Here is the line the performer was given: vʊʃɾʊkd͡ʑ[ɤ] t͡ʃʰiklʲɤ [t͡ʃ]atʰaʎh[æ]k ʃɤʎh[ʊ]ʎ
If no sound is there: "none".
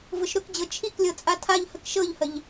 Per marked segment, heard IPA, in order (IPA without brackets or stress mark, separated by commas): ɤ, t͡sʼ, ə, ə